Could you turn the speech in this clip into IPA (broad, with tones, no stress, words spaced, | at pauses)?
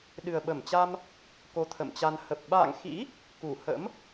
ɗɨ˨˩ə̯ɓə˧˩mt͡ɕa˧m | ko˧t̪ʰə̰˧˨mt͡ɕa˧n hə˨˩p̚ ɓa̰ː˧˨ŋxḭ˧˥ | ku˧˩hə̰˧˥m